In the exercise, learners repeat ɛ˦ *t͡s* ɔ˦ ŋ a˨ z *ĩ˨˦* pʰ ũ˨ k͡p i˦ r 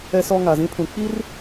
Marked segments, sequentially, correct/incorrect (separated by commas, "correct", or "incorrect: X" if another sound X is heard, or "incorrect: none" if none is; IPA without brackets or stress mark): incorrect: s, incorrect: ĩ˦